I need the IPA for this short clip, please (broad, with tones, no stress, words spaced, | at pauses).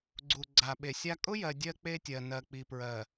ɡ͡ǀu˨ ɡ͡ǀa˨ɓe˨sʲa˦ kʼʊ˦jɜ˨ dʲɜ˦k͡pe˦tʲɜ˨ nɜ˨k͡pi˨pɹɜ˨